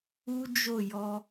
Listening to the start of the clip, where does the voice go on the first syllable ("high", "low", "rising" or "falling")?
high